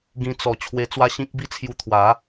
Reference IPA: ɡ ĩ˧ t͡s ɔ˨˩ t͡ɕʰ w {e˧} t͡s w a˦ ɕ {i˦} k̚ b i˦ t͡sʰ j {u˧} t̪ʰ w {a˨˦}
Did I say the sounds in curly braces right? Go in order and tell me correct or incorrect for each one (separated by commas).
correct, incorrect, correct, correct